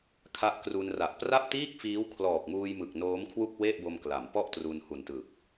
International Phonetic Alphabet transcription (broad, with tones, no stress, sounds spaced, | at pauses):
kʰ a˦˥ ʔ k r u˧ n r a˨˩ ʔ p r a˥˩ p̚ t iː˥˩ k̚ f iː˦˥ w kʰ l ɔː˨˩ k̚ m uː˧ j m ɯ˨˩ k̚ n oː˦˥ m kʰ w u˥˩ k̚ w e˥˩ ʔ b o˧ m k l a˩˦ m p ɔ˥˩ ʔ t r u˧ n h u˨˩ n t ɯ˨˩ k̚